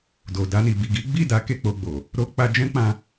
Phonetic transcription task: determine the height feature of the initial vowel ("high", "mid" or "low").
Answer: mid